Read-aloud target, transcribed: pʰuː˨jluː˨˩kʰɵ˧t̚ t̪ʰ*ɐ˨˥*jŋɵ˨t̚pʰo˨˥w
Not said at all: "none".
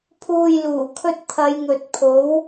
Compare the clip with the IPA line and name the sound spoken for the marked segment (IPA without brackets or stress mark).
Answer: ɐ˨˧